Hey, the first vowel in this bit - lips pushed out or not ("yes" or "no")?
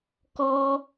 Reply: yes